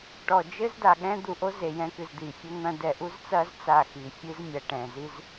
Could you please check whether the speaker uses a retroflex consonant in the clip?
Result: yes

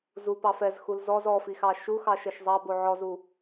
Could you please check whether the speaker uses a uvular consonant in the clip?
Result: no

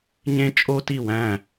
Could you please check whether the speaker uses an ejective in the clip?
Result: yes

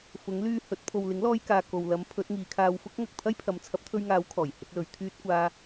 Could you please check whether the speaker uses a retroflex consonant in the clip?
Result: no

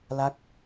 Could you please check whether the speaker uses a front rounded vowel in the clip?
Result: no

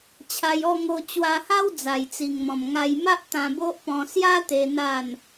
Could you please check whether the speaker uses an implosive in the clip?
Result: no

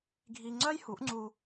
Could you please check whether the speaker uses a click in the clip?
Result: yes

